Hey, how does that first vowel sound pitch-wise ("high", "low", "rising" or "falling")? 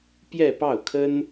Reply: falling